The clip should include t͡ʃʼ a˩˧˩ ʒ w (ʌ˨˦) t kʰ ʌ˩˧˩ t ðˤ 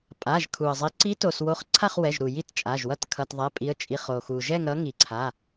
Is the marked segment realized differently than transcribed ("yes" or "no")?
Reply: yes